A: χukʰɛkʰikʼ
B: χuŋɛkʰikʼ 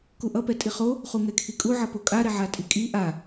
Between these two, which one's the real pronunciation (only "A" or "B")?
B